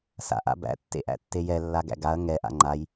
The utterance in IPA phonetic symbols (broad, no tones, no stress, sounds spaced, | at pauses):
s a̰ ʔ a̰ b æ̰ tː ḛ ʔ æ̰ tː e j ɛ lː a ɡ æ̰ ɡ a ɐ̯ ŋ ɛ ʔ a̰ ŋ͡ǃ a j